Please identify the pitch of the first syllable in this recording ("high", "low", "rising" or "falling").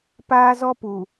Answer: high